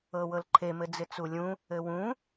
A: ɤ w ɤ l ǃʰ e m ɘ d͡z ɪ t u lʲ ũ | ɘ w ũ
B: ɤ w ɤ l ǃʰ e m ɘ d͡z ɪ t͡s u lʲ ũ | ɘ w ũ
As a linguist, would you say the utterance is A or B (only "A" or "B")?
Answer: B